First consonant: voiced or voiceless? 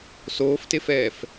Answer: voiceless